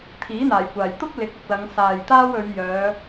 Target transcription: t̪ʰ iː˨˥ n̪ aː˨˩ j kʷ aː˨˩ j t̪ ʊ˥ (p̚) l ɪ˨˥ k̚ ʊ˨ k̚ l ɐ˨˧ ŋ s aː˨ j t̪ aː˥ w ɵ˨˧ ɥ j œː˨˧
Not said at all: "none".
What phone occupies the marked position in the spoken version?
k̚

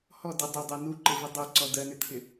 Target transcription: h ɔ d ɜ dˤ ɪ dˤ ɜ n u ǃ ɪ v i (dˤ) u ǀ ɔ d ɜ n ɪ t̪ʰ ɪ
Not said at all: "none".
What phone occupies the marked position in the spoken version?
dˤ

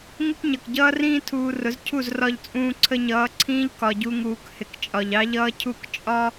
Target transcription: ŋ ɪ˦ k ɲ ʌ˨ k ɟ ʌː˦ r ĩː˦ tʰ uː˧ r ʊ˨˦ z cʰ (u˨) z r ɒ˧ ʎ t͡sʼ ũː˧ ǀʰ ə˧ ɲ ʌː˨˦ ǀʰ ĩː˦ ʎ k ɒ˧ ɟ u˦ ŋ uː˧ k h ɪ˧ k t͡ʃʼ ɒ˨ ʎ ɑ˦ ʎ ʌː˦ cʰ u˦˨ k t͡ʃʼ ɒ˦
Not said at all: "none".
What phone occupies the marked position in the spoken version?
u˦˨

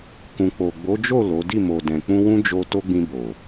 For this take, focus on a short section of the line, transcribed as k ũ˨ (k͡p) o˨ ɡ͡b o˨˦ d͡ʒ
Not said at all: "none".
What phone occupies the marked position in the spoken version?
k͡p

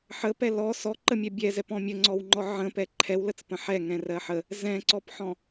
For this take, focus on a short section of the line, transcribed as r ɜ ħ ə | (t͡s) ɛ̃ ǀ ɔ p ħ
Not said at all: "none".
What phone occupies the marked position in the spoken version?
z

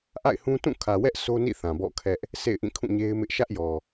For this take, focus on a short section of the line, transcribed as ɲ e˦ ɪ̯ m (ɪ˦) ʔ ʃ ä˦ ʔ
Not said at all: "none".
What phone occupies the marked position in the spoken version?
ɪ˦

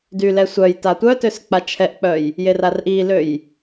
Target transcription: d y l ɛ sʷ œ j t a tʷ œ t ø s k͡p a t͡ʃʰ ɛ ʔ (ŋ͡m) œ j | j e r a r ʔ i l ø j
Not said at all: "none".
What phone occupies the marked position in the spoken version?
k͡p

